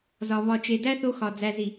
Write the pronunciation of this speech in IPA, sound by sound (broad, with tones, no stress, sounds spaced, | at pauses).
z ɒ˨ β ɒ˨ t͡ʃ e˨ d æ˦ θ o˦ x ɒ˨ d͡z æ˨ z i˨